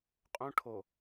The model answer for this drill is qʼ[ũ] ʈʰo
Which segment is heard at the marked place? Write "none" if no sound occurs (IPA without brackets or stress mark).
ũ